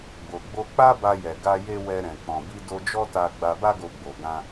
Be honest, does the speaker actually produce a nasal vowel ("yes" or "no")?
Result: yes